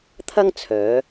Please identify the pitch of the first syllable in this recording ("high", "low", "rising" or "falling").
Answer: high